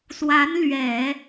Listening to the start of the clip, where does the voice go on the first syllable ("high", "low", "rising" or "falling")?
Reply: rising